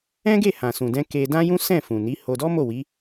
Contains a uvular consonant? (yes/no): no